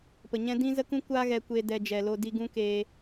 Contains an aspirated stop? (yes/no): no